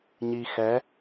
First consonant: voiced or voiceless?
voiced